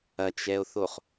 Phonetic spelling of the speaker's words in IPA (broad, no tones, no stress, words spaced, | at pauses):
ɐt͡ʃɛo̯θoχ